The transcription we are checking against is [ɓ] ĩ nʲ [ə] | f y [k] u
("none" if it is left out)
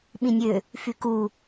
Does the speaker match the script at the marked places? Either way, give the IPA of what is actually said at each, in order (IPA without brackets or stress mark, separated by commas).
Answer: ɓ, ø, k